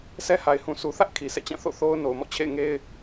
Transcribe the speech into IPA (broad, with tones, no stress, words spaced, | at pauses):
sɛ˦ha˨ɪ̯hũ˨ sʰu˨θä˦ʔ kʰi˨sʰɛ̰˦˨t͡ɕã˦˨ θo̰˦˨θo˦ʊ̯ no˨ʊ̯mɔ̰˦˨t͡ɕʰḛ˦˨ɪ̯ ŋe˦ɪ̯